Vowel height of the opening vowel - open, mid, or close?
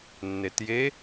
mid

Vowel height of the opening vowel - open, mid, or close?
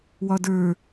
open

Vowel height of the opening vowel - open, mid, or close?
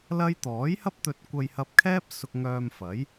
open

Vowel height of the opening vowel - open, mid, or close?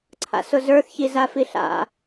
open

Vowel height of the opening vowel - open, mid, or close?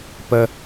mid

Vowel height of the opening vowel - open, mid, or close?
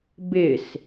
close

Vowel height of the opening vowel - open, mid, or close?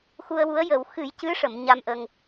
close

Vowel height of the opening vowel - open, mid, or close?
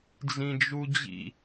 close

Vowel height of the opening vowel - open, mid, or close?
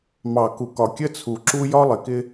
open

